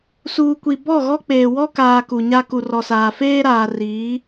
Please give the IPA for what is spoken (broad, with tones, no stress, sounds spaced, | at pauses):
s uː˨ kʷ i˨ b ɔ˦˨ ɣ ɔ˦ k͡p eː˨ w ɔ˦ k aː˨ k u˨ ɲ a˦ k u˨ r ɔ˨ s aː˨ f eː˦ ɾ aː˨ r iː˨˦